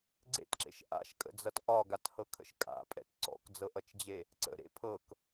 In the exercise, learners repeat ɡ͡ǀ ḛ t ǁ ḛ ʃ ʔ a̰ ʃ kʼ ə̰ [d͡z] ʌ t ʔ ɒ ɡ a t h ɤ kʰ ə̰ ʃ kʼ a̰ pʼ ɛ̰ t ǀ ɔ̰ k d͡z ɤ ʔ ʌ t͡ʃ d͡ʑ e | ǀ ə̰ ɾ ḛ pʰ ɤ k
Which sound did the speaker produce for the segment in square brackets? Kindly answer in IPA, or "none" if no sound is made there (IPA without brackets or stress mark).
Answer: d͡z